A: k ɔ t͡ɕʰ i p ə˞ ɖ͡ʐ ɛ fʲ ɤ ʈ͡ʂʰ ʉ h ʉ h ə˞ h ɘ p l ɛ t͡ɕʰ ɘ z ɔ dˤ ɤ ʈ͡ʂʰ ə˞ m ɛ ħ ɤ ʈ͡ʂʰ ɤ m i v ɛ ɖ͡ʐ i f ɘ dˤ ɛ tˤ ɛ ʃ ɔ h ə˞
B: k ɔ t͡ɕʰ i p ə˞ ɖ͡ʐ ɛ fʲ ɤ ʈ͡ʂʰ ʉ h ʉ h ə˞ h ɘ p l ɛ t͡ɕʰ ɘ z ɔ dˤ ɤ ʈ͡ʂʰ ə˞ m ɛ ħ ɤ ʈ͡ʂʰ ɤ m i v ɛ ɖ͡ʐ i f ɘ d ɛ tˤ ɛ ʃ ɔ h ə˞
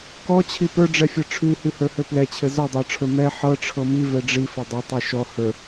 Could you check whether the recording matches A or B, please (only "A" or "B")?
A